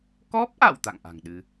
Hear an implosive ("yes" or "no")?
yes